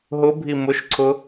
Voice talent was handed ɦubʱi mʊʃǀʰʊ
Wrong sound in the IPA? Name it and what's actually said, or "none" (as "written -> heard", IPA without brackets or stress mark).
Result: u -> ʊ